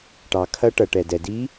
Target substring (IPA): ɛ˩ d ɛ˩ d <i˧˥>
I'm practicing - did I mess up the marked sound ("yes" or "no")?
no